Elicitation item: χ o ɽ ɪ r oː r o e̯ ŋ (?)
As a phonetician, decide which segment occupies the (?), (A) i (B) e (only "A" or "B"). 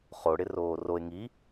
A